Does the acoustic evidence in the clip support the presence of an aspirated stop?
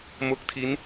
yes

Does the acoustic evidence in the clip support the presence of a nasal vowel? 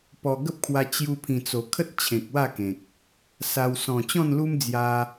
yes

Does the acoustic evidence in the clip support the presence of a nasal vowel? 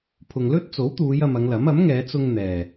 no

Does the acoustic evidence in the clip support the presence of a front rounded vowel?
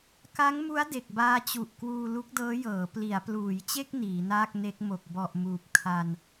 no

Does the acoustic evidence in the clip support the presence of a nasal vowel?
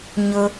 no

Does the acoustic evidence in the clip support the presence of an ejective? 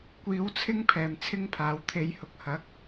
no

